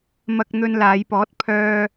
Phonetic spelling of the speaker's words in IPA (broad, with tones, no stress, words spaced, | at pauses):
mɐ˧k̚ n̪ɵ˧nlaː˨˧jpɔː˨˥t̚ pʰœː˧